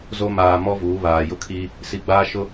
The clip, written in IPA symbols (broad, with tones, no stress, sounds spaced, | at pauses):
z o˦ m aː˨ m ɔ˦ v uː˨˦ β aː˨ j ʊ˦ kʰ iː˦ | s i˨ ɡ͡b aː˦ ʃ ʊ˦